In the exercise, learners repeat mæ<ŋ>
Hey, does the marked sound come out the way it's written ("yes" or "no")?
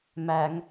yes